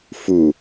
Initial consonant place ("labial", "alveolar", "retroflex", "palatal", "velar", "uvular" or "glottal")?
labial